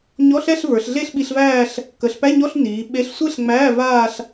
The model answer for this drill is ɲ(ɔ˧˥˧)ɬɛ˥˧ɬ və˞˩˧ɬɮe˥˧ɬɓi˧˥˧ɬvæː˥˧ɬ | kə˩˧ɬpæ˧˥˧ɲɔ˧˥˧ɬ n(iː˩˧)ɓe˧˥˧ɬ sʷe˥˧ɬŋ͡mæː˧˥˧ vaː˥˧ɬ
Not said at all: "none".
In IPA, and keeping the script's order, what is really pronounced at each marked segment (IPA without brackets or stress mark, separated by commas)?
ɔ˧˥˧, iː˩˧